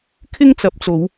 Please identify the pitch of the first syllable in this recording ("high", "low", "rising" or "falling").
high